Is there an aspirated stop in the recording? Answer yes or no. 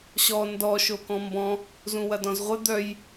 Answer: no